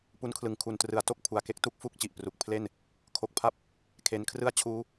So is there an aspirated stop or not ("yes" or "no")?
yes